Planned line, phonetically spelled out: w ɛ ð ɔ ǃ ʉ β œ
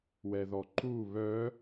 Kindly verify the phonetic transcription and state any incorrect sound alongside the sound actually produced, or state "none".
ʉ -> u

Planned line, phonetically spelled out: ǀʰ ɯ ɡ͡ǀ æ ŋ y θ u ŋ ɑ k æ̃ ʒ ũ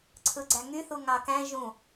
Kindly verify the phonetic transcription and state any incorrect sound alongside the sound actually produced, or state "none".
none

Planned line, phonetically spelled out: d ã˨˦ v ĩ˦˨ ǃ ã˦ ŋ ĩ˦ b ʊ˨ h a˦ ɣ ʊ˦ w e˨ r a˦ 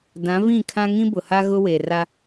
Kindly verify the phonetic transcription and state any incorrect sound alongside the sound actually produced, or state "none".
ǃ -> kʰ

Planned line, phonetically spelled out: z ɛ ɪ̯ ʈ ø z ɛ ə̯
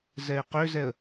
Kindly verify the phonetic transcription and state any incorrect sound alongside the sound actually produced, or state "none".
ʈ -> q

